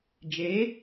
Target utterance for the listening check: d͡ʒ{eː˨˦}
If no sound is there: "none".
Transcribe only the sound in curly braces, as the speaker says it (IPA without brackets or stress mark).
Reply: eː˨˦